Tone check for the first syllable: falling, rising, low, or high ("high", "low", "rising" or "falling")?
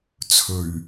low